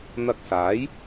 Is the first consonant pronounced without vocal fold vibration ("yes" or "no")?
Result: no